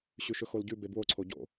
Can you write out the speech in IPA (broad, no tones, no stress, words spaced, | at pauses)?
ɕʉʃɵxolɟʉ bebwo ǀʰoɟo̰